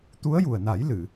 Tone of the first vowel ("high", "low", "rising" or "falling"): rising